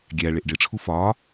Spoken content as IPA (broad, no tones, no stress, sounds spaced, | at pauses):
ɡʲ æ ɭ e ʔ ɖ e ʈ͡ʂʰ u f ɒː